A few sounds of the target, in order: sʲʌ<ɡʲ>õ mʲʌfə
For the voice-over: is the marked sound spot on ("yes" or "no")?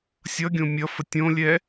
yes